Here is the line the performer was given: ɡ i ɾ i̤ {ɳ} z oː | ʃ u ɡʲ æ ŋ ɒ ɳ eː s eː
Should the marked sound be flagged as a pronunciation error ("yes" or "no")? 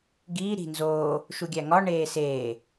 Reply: yes